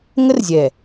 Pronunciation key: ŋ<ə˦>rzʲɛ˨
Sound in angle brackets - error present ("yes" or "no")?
no